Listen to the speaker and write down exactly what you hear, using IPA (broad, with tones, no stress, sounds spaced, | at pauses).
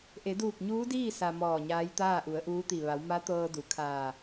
ʔ e˩˧ d uː˧˩ k̚ ɲ uː˧˥ d iː˥˨ s a˧ m ɔː˧˩ ɲ aː˧˥ j t̪ aː˥˨ ʔ u˩˧ ə̯ ʔ uː˧˥ t̪ i˧˩ ʋ a˩˧ w m a˧˥ t̪ ɤː˧ d u˩˧ kʰ aː˧˩